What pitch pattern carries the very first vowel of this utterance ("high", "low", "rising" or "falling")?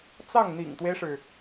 falling